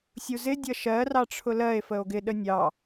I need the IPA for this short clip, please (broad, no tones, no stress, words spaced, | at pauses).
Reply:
sʲuzɪ dʲʌʃɜ rɑʈ͡ʂʰʊlɜe̯ fəo̯ɡɪ ɗənʲɑ